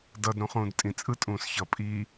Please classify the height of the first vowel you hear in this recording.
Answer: mid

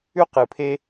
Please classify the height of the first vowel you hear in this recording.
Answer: high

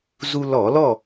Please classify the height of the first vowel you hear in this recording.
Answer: high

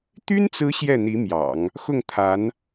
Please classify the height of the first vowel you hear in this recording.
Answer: high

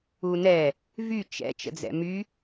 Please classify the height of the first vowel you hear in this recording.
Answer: high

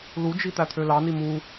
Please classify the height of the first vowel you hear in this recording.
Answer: high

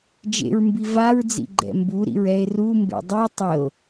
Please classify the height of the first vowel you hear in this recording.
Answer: mid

